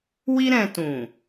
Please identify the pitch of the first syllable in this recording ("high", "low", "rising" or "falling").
high